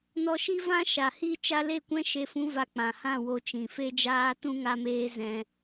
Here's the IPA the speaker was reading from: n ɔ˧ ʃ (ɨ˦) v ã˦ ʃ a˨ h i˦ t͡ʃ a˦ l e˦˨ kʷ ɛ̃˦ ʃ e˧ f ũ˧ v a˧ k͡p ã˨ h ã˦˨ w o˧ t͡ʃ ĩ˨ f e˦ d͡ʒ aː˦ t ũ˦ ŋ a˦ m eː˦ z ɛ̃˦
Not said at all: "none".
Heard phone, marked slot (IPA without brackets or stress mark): i˦